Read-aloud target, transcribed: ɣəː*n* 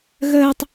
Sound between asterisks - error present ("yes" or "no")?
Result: yes